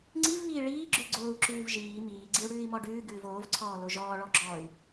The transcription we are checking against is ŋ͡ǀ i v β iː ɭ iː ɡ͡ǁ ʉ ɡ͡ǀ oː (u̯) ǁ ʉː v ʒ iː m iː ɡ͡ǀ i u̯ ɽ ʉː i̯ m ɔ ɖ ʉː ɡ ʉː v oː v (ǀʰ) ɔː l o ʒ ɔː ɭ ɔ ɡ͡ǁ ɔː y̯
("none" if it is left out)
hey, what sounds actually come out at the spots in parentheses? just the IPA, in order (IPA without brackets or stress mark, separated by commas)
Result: u̯, ǀʰ